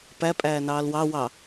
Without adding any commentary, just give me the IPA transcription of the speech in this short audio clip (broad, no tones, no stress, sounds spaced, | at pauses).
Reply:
p æ pʼ æː n ɑː l w ɑ w ɑ